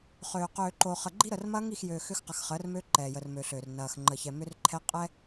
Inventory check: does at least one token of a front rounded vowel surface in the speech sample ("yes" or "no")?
yes